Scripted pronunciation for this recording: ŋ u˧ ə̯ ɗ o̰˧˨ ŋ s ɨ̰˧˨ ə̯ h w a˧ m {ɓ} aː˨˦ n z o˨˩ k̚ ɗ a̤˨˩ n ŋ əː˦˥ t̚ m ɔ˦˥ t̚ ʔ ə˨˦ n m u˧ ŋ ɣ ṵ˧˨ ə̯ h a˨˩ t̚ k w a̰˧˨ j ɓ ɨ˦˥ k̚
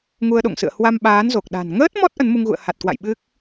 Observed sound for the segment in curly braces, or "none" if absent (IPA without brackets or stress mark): ɓ